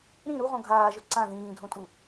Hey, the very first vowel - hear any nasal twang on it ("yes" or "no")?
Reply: yes